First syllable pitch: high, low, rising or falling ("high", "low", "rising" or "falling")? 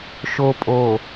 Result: low